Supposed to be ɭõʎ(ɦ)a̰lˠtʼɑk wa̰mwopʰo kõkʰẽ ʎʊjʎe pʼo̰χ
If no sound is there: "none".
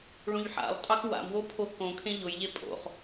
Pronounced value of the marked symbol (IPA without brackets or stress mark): ħ